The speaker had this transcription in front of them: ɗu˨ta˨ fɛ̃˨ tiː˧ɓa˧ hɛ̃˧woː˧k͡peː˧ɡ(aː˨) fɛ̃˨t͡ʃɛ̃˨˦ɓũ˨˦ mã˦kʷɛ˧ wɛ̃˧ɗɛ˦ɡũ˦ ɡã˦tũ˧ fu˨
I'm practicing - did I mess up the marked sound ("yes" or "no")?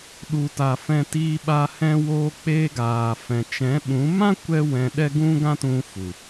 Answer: no